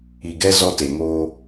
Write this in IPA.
i˨ ɡ ɛ˦ z ɔ˦ t e˨ ŋ oː˦

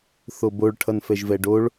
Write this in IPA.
θ o b o ɭ ʈʰ ʌ n f ɛ ʒ v ɛ ɖ o ɭ

